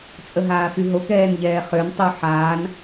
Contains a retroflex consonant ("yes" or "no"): no